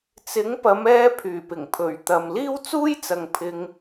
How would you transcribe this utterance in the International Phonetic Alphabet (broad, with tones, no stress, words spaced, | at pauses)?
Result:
t͡sɪ˨˥ŋpɐ˨˧m ɛː˧ pʰyː˨˩pɪ˨˩ŋpʰɵ˨˩ɥt̪ɐ˨m liː˥wt͡suː˥jt͡sɐ˨ŋ pʰɪ˧ŋ